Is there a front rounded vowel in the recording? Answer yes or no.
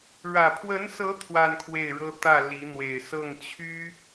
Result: yes